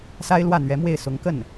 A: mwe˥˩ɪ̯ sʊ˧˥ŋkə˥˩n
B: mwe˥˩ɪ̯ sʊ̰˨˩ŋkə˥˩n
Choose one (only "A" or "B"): A